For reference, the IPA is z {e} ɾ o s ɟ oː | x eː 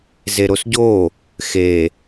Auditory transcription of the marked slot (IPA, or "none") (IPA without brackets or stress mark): e